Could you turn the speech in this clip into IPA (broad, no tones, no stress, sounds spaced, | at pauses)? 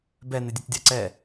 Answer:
b ɛ n ɪ dʲ ɨ t dʲ a ǀ ɛ